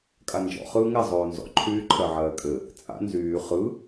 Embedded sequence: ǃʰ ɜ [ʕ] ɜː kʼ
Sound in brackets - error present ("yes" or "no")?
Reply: no